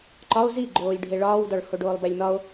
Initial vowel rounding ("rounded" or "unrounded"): rounded